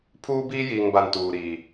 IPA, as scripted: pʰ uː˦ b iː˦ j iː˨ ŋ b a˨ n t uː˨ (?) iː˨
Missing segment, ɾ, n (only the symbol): ɾ